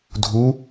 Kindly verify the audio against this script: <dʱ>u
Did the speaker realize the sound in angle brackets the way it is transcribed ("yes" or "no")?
yes